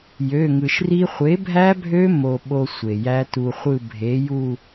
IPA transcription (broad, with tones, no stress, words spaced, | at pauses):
jø˩˧˩ŋɯ˩ʃ ri˧χʷe˨˥bʱæ˦˥bʱø˦˥ mo˧ ɓo˧ sʷe˩jæ˦˥tu˧χʷɯ˥˧ bʱe˨˥ju˥˧